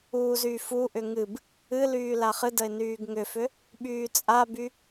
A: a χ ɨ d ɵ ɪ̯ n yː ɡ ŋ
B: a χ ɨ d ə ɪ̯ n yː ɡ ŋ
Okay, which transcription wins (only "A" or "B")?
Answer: B